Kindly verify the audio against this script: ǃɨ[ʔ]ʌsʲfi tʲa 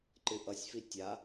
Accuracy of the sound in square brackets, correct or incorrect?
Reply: correct